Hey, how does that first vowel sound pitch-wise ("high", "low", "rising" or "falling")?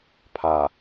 low